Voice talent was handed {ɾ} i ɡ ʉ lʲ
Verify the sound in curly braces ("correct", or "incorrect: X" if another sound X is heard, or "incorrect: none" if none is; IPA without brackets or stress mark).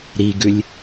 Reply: correct